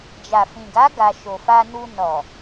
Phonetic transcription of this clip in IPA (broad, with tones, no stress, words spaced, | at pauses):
d͡ʒa˨fĩ˨ɡa˨˦ ɡa˧ ʃo˨fa˧nu˧ nɔ˨